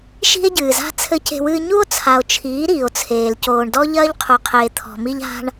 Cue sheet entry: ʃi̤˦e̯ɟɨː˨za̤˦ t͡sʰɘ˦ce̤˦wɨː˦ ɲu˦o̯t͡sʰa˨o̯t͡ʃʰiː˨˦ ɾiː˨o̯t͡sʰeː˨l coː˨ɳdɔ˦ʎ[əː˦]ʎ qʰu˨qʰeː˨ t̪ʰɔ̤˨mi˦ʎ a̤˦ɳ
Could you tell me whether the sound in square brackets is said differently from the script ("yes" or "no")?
yes